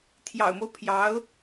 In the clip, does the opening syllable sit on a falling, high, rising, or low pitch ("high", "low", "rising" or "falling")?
low